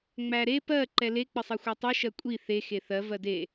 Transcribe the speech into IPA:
ŋ͡m æ ɾ e p ɜ ǃ ɛ l e k͡p ə sˤ e xʷ ɛ tˤ e ʃ ɜ kʷʼ i θ e x e θ ɜ v ɜ d e

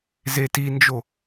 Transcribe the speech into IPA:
z e t i n d͡ʒ o

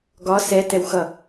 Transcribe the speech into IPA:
ɡ ɒ s ɛ t ɛ w x ʌ

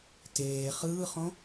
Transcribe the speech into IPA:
t eː χ ɯː χ õ

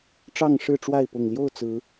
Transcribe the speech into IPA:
ʈ͡ʂ ɑ˥˨ ŋ ʂ ɻ̩˥˨ ʈ͡ʂ w a˥˨ ɪ̯ p ʊ˨˩ ŋ l j o˥˨ ʊ̯ t͡s ɹ̩˨˦

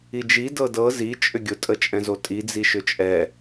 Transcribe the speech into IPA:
i d͡ʒ i d ɤ d ɤ z i t͡ʃʼ ʏ ɡʲ ʊ tʼ ə t͡ʃʼ ɛ̃ z o tʼ i d͡z i ʃ ʏ t͡ʃʼ ɛ

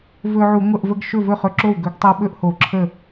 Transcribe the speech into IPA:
v ɵ˧ ʕ u˧˩˧ ŋʷ ə˥˩ ʔ v ə˧ ɡ ʃ ɵ˥˩ v ɵ˥˩ χ ɵ˧ ǁ o˥˩ w ɡ ɵ˧˩˧ ɡ tˤ ə˧ w ɓ ɵ˥˩ ʔ h o˧˩˧ ǁʰ ə˥˩

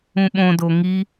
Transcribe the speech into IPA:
ũ ɓ õ d o ŋ i

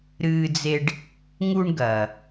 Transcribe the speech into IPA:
ɾ ɨː˧ d͡z e˧ ɖ | ŋ u˧ ɳ ɡ ɐː˩

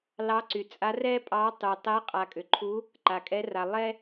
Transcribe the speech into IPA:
l ɑ˧˥ ǀ y˨ t͡sʼ a˧˥ r ɛ˥ pʼ ɑ˧˥ tˤ y˨ tˤ ɛ˧˥ qʼ a˨ kʼ ʏ˨ ǃʰ u˧˥ | ǃ a˨ kʼ ɛ˧˥ r a˨ lˠ ɛ˥

